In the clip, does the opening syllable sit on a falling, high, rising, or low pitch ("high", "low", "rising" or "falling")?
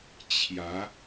rising